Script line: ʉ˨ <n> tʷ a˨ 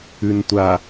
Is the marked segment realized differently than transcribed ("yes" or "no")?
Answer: no